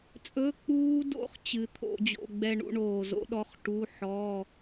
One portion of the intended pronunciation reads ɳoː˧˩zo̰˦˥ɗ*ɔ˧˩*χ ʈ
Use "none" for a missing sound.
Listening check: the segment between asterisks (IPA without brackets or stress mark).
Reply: ɔ˧˥˧